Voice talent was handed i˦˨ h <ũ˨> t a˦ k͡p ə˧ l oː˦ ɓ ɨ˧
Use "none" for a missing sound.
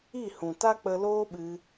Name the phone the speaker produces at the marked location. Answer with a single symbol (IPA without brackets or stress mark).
ũ˨